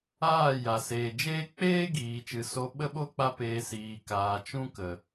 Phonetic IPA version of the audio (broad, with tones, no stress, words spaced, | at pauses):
aː˦˨ ja˨seː˨d͡ʒeː˦ k͡peː˦ɡiː˨t͡ʃɨ˨ so˧ɓə˦ɓo˦ k͡pa˦peː˧siː˨kaː˨ t͡ʃũ˦ kə˨